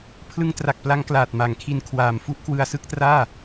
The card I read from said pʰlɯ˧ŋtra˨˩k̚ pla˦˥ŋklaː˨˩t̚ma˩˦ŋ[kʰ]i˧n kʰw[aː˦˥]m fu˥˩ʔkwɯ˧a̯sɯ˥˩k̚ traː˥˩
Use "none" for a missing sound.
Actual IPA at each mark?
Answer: kʰ, aː˨˩

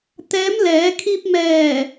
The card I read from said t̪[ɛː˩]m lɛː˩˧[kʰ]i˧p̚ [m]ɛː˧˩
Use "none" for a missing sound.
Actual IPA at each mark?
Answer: ɛː˧˥, kʰ, m

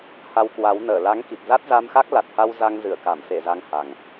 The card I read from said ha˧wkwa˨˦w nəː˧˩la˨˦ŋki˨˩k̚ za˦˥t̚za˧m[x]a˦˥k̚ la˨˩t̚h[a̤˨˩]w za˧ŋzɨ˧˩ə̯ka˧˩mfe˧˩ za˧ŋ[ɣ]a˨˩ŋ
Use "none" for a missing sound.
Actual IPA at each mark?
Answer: x, a˧, h

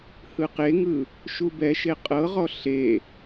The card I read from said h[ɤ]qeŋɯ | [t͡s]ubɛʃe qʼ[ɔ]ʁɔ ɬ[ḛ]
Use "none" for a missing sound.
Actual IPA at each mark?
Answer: ɯ, ʃ, ɤ, e

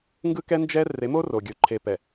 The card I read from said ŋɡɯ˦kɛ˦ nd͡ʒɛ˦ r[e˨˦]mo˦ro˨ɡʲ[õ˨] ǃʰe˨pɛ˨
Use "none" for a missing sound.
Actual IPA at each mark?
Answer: e˨˦, o˨

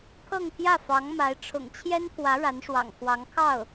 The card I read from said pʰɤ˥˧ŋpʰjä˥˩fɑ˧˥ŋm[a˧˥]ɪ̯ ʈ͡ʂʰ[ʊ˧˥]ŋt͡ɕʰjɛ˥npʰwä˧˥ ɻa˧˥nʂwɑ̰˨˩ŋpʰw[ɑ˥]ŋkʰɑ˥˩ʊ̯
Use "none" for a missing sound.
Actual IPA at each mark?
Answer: a˧˥, ʊ̰˨˩, ɑ˧˥

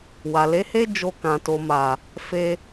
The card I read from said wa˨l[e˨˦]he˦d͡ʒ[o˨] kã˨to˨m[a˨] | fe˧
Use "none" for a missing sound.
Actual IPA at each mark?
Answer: e˨˦, o˧, a˨

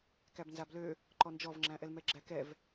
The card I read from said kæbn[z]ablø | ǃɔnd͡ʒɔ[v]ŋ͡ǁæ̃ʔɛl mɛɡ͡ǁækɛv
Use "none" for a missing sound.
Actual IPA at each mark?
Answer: z, v

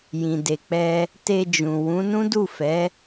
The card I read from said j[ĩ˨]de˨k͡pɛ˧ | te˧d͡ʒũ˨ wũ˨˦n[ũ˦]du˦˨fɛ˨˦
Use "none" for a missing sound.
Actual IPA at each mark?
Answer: ĩ˨, ũ˦

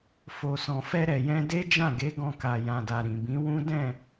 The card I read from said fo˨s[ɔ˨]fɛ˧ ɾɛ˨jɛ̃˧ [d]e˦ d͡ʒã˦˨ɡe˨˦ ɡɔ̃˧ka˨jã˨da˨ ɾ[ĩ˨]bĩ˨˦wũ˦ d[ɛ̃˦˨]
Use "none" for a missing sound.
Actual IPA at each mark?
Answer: ɔ̃˨, d, ĩ˨, ɛ̃˦˨

